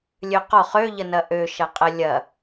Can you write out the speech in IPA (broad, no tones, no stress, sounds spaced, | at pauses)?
lʲ ø q ɔ χ ø ʎ ə n ɐ ʔ ø ʃ ɐ qʼ ə lʲ ɐ